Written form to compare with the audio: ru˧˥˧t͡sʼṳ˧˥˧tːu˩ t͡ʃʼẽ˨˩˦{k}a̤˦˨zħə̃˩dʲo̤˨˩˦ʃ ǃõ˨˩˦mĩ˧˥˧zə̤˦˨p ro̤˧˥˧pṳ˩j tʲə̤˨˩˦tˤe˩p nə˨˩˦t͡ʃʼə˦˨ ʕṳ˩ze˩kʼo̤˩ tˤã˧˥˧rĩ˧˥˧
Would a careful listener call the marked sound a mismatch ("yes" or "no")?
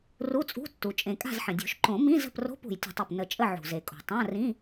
yes